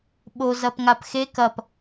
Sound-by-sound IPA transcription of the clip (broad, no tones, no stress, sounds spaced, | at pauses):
ɓ o z ɐ p ŋ a p x e k ɐ p